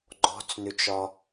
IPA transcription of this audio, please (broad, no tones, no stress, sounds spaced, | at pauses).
ɡ͡ǃ ɔ̤ t͡s n ʏ t͡ʃ ɒ